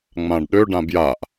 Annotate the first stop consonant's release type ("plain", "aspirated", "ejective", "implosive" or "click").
plain